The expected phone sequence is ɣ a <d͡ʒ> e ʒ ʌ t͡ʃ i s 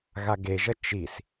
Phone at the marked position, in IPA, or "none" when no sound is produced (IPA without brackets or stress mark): ɡ